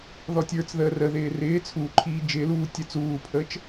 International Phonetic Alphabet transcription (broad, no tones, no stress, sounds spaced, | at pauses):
ð ɔ tʲ ə˞ t͡s ð əː r ə ð ɪː r ɪː t͡sʰ uː ǃʰ iː d͡ʒ ɪː l uː tʲ ə t͡s uː pʰ əː t͡ʃ